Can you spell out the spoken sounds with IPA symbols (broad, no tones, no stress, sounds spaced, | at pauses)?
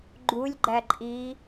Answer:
ɡ͡ǃ u lʲ ɡ͡ǃ æ ǃʼ i